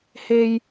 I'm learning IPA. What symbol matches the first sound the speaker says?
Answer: h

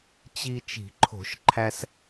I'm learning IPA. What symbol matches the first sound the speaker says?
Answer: t͡ɕ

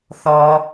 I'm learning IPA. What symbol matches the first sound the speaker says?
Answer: θ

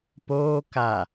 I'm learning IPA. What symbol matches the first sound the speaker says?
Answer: p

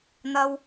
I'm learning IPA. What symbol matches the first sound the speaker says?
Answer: n̪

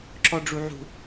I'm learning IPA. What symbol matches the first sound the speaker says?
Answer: ǁ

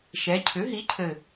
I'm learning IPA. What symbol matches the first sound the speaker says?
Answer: ʃ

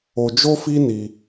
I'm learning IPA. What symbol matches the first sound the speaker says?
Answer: o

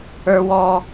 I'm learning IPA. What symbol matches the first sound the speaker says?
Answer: ə˞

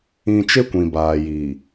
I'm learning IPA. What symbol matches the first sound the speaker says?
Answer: ĩ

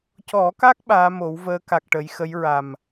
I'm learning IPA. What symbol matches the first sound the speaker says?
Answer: c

